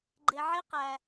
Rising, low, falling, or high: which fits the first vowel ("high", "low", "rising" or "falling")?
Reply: low